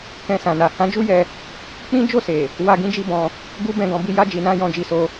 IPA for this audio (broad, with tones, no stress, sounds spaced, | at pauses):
k ɛ̃˧ s ã˨ n a˨ h ã˨˦ d͡ʒ u˦ j ɛ˧ | k͡p ĩ˦ d͡ʒ o˦˨ s e˨ | w a˨ ɡ ĩ˧ d͡ʒ i˧ b ɔ̃˧ | ɡ u˦ b ɛ̃˧ ɡ ɔ̃˧ b i˧ j a˧ d͡ʒ i˨ n ã˧ j ɔ̃˧ d͡ʒ i˧ s o˧